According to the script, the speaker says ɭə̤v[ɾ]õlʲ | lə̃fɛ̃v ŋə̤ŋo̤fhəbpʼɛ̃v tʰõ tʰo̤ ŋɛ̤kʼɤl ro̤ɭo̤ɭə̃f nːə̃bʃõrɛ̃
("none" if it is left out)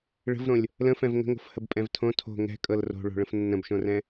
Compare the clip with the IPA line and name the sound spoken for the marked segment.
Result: ɾ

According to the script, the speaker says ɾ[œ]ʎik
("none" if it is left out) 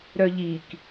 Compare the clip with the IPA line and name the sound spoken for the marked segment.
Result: œ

